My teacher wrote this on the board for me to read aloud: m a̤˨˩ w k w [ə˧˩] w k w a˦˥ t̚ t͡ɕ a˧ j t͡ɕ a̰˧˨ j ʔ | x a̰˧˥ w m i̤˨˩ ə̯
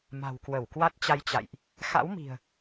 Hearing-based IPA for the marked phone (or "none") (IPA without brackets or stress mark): ə˧˩